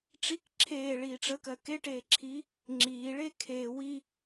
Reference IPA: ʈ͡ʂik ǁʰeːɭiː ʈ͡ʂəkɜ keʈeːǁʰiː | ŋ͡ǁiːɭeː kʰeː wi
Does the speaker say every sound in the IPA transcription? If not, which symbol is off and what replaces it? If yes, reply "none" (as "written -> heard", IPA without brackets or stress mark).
none